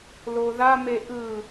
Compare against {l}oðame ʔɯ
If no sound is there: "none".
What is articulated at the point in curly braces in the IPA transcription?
l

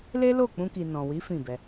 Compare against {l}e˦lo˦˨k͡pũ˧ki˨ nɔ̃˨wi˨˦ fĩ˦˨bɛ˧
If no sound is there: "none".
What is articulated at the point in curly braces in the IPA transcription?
l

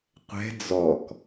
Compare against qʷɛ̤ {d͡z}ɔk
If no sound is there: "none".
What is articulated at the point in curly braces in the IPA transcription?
d͡z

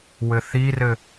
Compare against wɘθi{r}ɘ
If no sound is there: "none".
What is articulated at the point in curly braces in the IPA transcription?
r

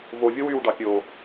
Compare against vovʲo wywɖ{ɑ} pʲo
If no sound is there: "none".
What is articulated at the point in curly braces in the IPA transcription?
ɑ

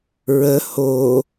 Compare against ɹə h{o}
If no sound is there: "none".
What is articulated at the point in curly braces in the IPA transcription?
o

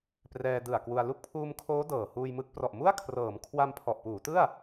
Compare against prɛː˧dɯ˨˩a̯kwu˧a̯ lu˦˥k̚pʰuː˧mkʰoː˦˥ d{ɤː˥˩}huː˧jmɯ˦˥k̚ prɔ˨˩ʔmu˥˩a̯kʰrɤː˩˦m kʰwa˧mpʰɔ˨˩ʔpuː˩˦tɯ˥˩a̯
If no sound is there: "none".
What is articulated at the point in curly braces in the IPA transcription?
ɤː˨˩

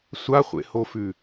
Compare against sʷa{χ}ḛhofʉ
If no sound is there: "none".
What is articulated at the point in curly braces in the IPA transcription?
χʷ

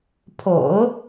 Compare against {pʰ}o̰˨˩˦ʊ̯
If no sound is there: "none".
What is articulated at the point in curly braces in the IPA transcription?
pʰ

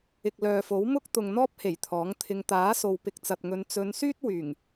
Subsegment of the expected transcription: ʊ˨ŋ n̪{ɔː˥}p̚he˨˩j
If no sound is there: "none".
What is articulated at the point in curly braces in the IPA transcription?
ɔː˥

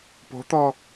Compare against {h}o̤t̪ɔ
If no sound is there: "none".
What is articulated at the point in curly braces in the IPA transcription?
p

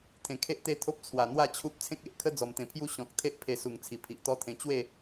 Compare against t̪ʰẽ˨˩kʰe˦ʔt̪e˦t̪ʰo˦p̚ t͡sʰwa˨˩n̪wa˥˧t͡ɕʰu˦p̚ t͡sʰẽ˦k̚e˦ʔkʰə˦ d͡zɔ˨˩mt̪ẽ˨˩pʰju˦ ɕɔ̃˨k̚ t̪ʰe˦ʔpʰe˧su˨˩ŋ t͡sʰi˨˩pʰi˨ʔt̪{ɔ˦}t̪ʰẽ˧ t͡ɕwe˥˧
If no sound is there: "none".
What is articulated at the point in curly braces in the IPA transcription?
ɔ˦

